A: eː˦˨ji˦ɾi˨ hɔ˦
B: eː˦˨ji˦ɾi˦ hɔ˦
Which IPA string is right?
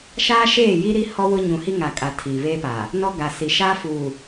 B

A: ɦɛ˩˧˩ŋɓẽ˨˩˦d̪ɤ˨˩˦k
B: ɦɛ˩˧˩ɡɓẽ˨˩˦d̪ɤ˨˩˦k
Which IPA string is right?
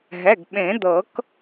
B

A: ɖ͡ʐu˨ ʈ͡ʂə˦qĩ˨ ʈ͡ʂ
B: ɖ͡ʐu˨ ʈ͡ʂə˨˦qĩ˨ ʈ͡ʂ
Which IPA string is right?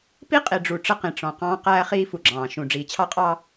A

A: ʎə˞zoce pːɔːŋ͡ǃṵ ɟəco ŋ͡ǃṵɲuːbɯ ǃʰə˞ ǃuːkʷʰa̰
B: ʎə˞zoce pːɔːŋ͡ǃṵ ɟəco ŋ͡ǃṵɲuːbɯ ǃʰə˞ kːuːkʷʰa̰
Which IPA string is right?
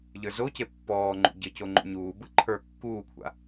B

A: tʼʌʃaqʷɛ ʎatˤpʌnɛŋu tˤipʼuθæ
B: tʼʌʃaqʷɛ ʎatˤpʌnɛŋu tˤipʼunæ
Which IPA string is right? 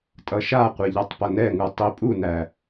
B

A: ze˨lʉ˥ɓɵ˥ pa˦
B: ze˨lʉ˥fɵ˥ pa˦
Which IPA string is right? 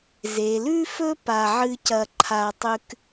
B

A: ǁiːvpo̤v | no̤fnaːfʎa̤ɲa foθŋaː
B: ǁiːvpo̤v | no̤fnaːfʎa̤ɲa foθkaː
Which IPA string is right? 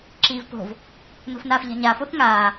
A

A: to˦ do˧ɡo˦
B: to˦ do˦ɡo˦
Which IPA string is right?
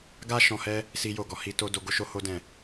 A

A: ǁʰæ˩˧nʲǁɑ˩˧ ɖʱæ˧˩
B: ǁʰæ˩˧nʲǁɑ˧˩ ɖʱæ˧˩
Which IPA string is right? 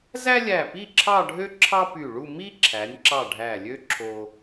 B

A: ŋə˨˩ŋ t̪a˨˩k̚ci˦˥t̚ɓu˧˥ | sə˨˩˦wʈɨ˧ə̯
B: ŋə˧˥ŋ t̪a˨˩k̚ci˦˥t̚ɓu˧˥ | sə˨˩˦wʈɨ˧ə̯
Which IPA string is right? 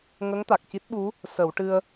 B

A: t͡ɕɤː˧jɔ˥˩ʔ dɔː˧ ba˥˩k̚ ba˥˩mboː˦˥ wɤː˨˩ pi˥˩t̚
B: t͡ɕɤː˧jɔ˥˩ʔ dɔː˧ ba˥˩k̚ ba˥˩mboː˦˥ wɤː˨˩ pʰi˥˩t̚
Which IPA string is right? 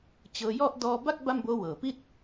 A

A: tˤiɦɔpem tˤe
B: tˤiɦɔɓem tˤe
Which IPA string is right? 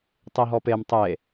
A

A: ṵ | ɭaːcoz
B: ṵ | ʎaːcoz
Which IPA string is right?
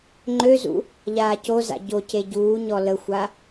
B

